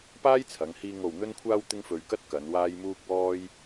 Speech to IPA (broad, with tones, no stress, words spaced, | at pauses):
paː˥jt͡sʰɐ˨˧ŋhiː˧ŋo˨w n̪ɵ˧nkʷʰaː˧w t̪ɪ˥ŋfɵ˧ɥkɐ˥t̚kɐ˨˧n waː˧j muː˧k̚ wɔː˥j